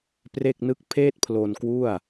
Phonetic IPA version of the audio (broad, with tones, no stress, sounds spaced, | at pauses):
p r e˥˩ k̚ n ɯ˥˩ k̚ pʰ eː˥˩ t̚ pʰ l o˧ n k w u˥˩ a̯